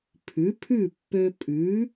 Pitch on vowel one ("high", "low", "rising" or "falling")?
rising